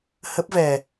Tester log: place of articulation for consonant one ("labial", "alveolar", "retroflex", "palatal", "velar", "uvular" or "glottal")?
glottal